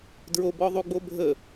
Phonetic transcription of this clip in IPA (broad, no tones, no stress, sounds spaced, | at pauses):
d ɹ o b ɔ ðˤ u ɡ͡b o bʱ ə